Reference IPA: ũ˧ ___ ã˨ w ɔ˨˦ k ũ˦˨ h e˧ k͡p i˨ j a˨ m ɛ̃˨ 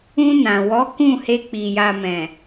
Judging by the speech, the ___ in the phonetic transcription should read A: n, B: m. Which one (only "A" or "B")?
A